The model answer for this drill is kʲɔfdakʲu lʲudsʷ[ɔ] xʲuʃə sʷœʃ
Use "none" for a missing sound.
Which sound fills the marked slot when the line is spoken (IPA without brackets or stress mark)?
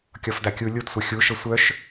ʌ